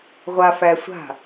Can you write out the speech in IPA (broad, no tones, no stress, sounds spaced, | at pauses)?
ʁʷ a f æ sʷ a̤